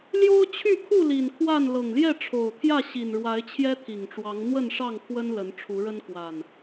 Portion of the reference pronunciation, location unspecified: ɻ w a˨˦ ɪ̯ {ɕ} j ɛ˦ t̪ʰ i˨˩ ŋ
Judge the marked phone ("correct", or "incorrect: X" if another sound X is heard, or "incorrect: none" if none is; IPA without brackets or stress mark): incorrect: t͡ɕʰ